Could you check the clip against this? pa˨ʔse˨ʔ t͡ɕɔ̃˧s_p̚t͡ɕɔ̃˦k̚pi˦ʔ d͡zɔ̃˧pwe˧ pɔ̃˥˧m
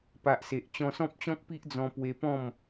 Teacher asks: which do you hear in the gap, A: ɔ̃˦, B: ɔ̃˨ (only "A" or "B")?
A